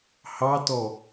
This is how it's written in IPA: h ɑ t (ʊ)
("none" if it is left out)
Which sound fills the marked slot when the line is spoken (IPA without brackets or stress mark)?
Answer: ɔ